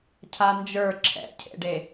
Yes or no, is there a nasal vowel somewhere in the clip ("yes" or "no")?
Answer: no